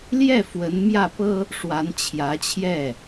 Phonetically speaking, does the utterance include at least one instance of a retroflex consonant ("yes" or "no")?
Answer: yes